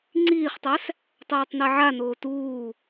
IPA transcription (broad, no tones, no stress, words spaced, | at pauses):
ŋ͡ǀiːχtˤæs | tˤɛːtˤnɛʕanoː tuː